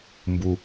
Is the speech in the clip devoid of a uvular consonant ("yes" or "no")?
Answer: yes